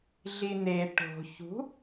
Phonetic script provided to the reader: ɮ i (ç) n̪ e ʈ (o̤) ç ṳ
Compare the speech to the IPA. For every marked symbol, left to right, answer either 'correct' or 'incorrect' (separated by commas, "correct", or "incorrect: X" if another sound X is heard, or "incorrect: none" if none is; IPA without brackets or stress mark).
incorrect: none, correct